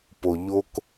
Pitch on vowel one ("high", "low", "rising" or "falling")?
low